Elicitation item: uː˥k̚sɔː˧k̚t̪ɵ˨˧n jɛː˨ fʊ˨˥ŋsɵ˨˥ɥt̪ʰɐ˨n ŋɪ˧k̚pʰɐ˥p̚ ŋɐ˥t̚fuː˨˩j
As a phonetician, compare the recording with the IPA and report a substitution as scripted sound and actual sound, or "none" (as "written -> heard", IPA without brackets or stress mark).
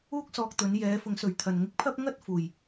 ɛː˨ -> ɛː˨˧